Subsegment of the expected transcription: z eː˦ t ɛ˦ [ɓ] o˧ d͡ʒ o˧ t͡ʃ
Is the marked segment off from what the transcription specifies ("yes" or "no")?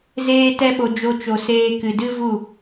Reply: no